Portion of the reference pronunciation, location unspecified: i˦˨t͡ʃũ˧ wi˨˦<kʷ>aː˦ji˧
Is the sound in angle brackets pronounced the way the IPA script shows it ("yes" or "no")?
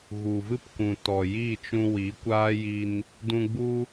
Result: yes